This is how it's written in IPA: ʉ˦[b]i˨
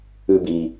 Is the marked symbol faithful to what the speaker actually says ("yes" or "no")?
yes